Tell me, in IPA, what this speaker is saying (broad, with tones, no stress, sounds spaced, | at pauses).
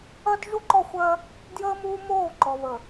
ɜ˦ d ʒ u˦ ǃ ɔ˦˨ xʷ ɜ˦ | d j əː˦ m uː˦ m oː˦˨ ǃ ɔ˨ β ə˨